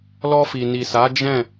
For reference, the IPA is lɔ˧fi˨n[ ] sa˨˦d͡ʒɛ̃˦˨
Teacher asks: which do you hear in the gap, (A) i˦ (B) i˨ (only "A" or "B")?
B